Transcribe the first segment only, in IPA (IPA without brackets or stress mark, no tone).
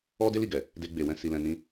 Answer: ɔ